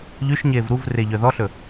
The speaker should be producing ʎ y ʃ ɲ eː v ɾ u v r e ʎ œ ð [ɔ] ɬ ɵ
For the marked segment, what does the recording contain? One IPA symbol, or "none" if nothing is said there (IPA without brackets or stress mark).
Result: ɔ